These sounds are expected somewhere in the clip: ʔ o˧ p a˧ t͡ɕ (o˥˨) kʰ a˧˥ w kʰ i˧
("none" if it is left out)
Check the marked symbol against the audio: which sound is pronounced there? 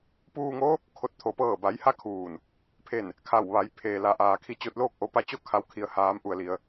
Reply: o˥˨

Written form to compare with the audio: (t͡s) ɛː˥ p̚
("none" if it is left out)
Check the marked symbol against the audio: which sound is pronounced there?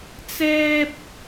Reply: t͡s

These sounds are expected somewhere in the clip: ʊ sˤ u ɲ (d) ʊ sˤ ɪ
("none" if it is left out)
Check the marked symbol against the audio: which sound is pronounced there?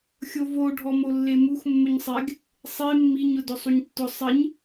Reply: tː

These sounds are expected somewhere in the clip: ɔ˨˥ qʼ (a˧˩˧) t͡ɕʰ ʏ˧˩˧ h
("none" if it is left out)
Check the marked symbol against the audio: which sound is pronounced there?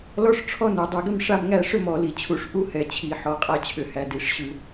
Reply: a˥˧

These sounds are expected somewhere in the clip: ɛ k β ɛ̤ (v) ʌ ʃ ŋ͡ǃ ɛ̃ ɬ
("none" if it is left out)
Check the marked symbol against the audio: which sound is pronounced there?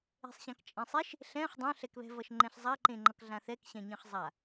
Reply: v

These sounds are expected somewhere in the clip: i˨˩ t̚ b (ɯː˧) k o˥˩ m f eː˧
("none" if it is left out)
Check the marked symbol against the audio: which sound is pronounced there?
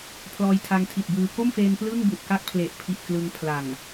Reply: ɯː˧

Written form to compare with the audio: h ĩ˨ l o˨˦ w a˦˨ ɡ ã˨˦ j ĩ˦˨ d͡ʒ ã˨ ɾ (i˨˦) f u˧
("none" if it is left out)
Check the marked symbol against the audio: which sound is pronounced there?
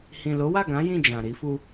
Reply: i˨˦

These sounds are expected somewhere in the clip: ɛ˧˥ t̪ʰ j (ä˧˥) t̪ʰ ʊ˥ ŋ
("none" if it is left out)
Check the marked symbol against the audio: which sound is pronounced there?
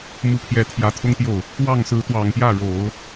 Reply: ä˧˥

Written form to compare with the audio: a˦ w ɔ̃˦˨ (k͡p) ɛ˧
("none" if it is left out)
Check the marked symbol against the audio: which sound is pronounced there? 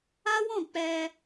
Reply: k͡p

